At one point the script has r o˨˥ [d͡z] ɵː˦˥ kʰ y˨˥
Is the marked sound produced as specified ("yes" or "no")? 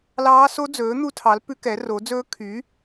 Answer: yes